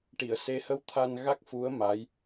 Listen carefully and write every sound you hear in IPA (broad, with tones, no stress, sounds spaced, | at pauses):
ʈ i˨˩˨ ə̯ s e˧˥ h ə˧˥ w t̪ʰ a˧ n ɣ a˦˥ k̚ f u˧˥ ə̯ m a˧˥ j